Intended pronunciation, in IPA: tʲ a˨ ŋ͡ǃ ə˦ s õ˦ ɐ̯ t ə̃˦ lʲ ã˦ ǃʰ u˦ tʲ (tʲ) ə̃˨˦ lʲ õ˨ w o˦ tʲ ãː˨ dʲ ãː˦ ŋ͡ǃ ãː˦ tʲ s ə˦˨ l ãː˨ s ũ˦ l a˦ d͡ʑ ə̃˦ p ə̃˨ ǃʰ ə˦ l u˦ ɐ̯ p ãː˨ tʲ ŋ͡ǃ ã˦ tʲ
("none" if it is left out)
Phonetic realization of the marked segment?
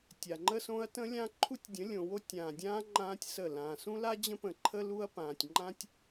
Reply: dʲ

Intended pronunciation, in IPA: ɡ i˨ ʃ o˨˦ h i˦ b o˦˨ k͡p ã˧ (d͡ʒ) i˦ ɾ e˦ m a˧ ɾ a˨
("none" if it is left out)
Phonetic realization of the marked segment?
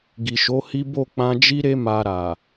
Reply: d͡ʒ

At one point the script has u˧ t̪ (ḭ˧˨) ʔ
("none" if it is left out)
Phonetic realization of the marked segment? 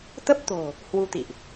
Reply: ḭ˧˨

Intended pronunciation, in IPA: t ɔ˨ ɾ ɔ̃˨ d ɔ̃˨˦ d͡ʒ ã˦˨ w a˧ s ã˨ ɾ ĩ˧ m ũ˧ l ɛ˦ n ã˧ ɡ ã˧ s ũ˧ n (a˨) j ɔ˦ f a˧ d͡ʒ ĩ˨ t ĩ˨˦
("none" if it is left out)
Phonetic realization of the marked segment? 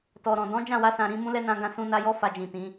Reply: a˧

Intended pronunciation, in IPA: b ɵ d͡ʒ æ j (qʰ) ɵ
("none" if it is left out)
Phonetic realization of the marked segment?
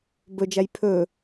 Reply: pʰ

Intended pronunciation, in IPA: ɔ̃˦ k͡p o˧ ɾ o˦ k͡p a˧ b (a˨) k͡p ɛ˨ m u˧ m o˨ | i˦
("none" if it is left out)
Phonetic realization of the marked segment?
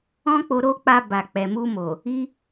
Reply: a˨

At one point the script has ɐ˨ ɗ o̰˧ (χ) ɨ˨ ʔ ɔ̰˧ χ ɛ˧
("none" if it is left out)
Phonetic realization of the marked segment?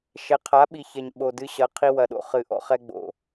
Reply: χ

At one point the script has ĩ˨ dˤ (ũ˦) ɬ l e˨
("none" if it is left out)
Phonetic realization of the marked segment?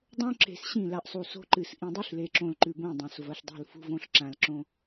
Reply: u˦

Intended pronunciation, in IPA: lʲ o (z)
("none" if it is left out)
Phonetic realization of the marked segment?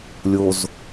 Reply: z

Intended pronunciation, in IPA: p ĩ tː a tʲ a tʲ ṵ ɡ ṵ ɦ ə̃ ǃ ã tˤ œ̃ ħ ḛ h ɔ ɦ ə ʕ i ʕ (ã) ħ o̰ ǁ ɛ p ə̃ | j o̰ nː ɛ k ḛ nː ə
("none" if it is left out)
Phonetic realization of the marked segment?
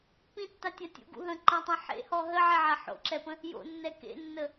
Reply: a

